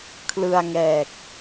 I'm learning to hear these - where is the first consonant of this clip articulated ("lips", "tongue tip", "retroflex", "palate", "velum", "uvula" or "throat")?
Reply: velum